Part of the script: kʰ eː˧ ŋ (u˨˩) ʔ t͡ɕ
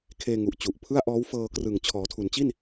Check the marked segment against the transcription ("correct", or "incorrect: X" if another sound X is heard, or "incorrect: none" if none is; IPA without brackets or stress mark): correct